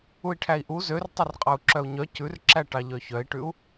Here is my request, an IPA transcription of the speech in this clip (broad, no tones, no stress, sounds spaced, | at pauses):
u i̯ ʈʰ æ i̯ ʔ u z ø r tˤ œ r qʼ ɑ u̯ ǁ œ u̯ ɲ œ c ʉ r ǁ æ ʈ ɑ ʎ œ ç œ i̯ ʈ ʉ u̯